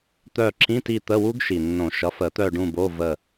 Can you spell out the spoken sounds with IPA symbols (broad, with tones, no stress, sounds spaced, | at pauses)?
t̪ œ˦˨ ǁ ĩ˧˥˧ t i˦˨ t̪ ə˧˥˧ w u˦˥ ɡ ʃ i˨˩ nː õ˨˩˦ ʃ ʌ˩˥ f ə˨˩˦ t̪ œ˦˨ ɖ ũ˦˨ b o˧˥˧ v ə˦˨